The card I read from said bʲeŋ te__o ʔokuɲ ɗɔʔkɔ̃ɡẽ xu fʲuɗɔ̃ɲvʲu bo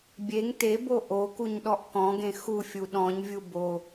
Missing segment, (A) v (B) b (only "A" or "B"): B